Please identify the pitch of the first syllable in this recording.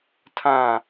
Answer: falling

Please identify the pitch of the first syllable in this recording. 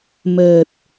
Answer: low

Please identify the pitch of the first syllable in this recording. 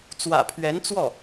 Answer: low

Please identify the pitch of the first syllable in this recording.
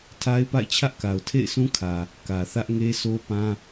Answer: high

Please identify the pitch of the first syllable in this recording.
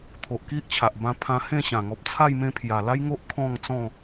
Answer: low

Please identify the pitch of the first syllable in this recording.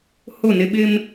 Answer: falling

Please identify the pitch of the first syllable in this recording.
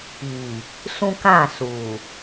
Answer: low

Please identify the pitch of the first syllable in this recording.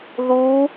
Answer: rising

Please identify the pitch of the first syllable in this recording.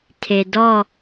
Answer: low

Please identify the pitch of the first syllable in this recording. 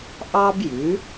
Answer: high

